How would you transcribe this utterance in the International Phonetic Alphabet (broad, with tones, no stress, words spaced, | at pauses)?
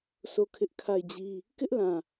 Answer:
sʰo˦˨kʰɪ˦ʔ kʰa˦˨ɪ̯d͡ʑi˦ | kɪ˦ʔlã˨